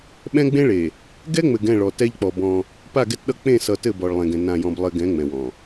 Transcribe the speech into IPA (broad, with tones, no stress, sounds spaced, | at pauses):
ɓ ɛ̃˦ ɡ͡b ẽ˦ ɭ e˨ | ɡ ɛ˦ ŋ͡m ɘ˨ ɡ ɛ̃˦˨ ɭ ɔ˨ t ɛ˦ ʎ k͡p ɔ˨ b ɔ̃˦ | p a˦˨ ɡ ɛ˦ t ɗ ʌ˦ k͡p ẽ˦˨ s ʌ˨ t ɘ˦˨ b ɔ˨ ɭ lˠ ẽ˨ ɡ ɛ̃˨ n ã˨ j ɔ̃˨ b lˠ ɘ˨ ɡ ɛ̃˨˦ ŋ͡m ɛ̃˨ w ɔ̃˨